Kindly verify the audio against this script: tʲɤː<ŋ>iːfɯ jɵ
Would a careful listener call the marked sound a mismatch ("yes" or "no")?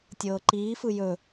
yes